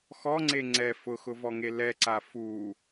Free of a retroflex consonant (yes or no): yes